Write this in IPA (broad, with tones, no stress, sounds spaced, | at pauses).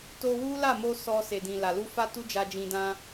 t o˧ w u˦ l a˦˨ m o˧ s ɔ˧ s e˨ d ĩ˨ l a˨ l u˧ f a˦ t u˦ d͡ʒ a˧ d͡ʒ ĩ˧ d ã˦